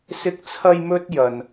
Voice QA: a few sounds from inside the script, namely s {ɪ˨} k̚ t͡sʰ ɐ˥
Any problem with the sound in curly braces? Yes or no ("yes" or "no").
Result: yes